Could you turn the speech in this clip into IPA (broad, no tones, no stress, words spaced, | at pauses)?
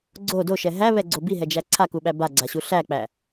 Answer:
ɡ͡ǀo doʃɛ ɦæβɛɡ͡ǀo biɦɛd͡ʒæ ǀʰakuɓæ baɡ͡ǀaɕu ɬæk͡pæ